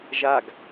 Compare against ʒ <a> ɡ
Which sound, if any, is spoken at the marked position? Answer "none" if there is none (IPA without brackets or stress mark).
a